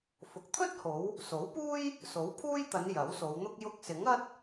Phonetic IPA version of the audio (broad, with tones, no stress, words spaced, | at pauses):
fʊ˨k̚t̪ʰɵ˥t̚ho˨˧w | so˨˥wpuː˥j | so˨˥wpʰuː˥jt̪ɐ˨˧n jɐ˨˥wso˨˧wn̪ʊ˥k̚ jʊ˧k̚sɪ˨˥ŋɐ˥t̚